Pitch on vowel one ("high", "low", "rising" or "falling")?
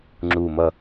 low